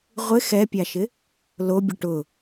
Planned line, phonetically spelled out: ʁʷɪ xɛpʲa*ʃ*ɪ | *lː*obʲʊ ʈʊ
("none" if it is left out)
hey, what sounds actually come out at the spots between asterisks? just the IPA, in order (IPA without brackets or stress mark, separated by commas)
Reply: ʃ, l